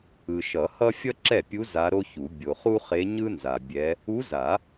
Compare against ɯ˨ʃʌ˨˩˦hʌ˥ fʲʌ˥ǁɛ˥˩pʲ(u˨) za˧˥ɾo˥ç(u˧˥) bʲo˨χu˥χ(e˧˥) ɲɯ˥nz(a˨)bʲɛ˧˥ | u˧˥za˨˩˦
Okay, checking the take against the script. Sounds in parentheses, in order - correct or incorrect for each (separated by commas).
incorrect, incorrect, correct, correct